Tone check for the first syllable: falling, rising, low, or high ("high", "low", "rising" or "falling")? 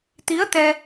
rising